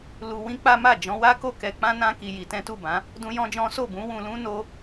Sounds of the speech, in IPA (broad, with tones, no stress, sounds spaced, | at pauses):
l u˧ w ĩ˦ k͡p a˦ m a˦˨ d͡ʒ ɔ̃˨˦ w a˦ k o˦˨ k ɛ˧ k͡p ã˦ n ã˦ k i˧ j i˧ t ɛ̃˦ t u˦˨ b ã˨˦ | d ũ˦ j ɔ̃˦ d͡ʒ ɔ̃˦ s o˦˨ b ũ˨˦ w ũ˧ l ũ˦ n o˦